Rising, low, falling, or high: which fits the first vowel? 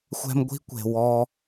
high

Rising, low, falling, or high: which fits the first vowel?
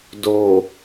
low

